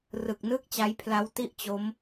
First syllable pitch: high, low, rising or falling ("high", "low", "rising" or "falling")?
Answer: low